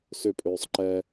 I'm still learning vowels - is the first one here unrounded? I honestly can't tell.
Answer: no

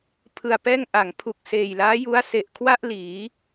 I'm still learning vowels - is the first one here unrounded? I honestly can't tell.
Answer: yes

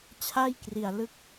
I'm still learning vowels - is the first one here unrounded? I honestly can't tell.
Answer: yes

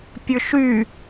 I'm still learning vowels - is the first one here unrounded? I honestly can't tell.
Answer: no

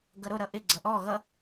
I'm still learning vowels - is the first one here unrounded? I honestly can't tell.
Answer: yes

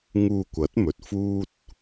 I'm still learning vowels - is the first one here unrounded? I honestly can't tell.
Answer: no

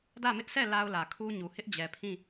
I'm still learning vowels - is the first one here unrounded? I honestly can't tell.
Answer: yes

